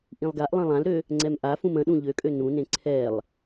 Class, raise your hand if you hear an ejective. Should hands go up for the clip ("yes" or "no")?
yes